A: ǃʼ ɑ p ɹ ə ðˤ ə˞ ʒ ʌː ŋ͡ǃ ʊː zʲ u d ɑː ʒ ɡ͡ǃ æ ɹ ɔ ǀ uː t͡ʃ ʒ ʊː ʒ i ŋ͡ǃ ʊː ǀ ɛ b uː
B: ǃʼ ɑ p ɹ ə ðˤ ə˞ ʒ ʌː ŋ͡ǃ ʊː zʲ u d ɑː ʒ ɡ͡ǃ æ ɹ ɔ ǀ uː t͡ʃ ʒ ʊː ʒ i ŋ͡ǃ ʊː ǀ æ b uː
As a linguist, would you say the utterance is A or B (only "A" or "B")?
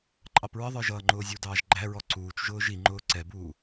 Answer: A